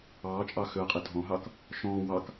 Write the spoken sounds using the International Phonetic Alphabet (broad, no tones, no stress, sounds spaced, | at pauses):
ɑː t͡ʃʼ ɑ x ʏ ɐ̯ qʼ e dʱ ɔ̃ ɦ ɑ k | ʃ ɔ̃ː w ɑ k